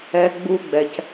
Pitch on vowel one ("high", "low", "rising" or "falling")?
high